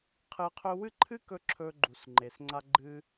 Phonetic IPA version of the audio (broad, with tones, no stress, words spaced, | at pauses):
qʰɨ˧qʰɵ˦ wɨ˦ǃʰɨ˦kɵ˧ ǁʰɵ˧ ɡ͡ǃu˨s ŋ͡ǃe˨sŋ͡ǀa˧ ɡ͡ǃɨ˧